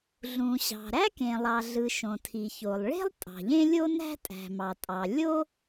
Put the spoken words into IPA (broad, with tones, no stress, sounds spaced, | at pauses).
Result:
ɮ ũ˩ ɕ ɑ̤˩ ɾ æ˥ k ẽ˩ lˠ ɑ˩ ɮ ɯ˩ ʃ õ˩ tʰ i˩ ç o˩ lˠ ɭ e̤˥ lˠ tʼ ɑ̤˩ ʎ ẽ˥ lʲ o˥ n æ̤˥ tʼ æ̤˩ m ɑ˩ tʼ ɑ˩ lʲ o˥